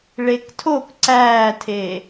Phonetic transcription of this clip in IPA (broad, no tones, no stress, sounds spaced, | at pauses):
ɭ e k tʰ o k ǀ æː tʰ eː